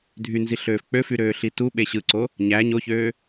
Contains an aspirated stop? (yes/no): no